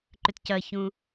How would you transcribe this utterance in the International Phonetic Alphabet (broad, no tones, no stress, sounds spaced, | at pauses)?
ǃ ʏ t c ɐ ç ũ